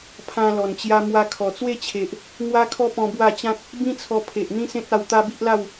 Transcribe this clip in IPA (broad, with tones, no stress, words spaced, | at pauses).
pʰã˧lɔ˨˩nt͡ɕja˧ mwa˧ kʰɔ˨˩t͡swe˥˧t͡ɕʰe˨ʔ | ŋwa˦kʰɔ˦pɔ̃˧ bwa˥˧t͡ɕã˦k̚ | bĩ˦t͡sʰɔ˧pʰe˨ʔ n̪ĩ˦sẽ˦t̚a˧w t̪a˦bi˦ʔla˥˧w